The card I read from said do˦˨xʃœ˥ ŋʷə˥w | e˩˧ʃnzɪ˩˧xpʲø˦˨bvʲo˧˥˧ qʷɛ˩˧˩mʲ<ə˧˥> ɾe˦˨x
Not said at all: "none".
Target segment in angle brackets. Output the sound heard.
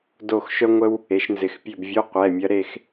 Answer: ɐ˧˥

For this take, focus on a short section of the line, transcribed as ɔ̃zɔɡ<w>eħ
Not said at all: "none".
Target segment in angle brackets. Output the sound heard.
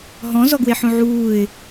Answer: w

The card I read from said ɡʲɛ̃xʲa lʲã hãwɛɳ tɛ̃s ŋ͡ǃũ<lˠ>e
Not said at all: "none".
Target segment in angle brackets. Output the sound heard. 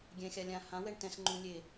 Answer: lʲ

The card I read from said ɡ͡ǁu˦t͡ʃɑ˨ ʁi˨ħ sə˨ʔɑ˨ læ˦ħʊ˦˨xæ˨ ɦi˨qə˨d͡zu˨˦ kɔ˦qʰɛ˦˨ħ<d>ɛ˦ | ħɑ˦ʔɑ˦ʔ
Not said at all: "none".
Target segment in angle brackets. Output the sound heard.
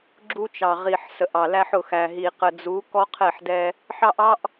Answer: d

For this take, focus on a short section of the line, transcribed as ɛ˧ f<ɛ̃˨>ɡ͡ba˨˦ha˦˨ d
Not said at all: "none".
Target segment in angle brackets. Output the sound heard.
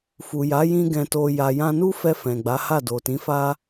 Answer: ɛ̃˨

